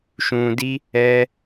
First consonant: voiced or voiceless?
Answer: voiceless